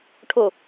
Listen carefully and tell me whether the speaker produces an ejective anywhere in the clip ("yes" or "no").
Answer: no